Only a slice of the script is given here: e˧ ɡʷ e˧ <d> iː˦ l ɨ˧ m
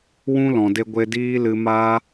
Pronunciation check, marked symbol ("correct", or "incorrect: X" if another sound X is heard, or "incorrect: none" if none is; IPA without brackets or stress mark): correct